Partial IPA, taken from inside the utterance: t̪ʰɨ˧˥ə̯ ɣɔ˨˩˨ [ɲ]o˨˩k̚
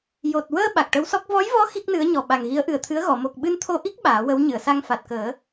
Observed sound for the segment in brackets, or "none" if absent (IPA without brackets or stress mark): m